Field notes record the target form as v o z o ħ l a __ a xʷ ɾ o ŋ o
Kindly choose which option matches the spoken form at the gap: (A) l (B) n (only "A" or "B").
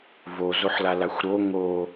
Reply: A